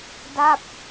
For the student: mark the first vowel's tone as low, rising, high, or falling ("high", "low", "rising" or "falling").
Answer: falling